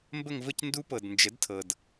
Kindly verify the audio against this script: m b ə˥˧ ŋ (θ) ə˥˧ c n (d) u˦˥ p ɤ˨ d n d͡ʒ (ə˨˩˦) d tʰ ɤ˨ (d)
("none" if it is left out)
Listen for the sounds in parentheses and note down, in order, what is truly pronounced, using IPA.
v, d, ə˨˩˦, d

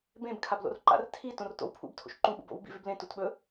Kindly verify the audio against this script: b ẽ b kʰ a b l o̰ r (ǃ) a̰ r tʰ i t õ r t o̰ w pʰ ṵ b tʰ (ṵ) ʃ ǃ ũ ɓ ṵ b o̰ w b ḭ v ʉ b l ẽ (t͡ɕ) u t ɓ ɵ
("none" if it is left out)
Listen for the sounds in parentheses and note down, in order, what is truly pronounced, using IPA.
ǃ, o̰, t

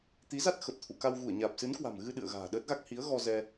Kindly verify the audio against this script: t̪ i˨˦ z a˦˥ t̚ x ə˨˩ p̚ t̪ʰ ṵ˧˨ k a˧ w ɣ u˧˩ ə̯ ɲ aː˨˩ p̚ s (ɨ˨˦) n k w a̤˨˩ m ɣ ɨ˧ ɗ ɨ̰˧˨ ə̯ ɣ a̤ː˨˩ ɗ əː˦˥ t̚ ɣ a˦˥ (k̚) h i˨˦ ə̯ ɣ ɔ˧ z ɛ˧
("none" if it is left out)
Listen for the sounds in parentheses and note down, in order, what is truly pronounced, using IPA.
ɨ˨˦, k̚

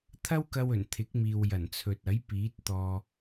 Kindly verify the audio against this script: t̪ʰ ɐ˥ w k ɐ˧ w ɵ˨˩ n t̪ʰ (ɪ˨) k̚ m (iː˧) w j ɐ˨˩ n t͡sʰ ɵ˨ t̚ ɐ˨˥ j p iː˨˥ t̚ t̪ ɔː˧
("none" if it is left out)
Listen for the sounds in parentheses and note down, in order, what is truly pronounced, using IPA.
ɪ˨˥, iː˨

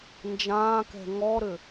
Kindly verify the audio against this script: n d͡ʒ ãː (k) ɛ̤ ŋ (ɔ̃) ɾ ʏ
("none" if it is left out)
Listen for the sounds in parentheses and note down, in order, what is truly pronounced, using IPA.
k, ɔ

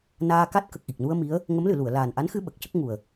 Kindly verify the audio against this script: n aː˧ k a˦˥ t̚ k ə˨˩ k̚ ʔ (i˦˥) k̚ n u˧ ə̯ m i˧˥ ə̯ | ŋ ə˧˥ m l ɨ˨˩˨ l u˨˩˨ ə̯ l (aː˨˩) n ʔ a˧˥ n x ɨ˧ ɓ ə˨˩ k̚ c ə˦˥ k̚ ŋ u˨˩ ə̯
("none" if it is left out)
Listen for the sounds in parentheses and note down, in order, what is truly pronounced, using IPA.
i˨˩, aː˨˩

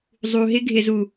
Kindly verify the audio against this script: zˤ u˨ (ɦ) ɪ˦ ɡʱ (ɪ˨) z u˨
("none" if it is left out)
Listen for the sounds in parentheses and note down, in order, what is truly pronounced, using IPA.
ɦ, ɪ˨

